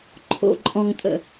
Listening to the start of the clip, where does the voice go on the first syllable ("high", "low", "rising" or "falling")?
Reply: low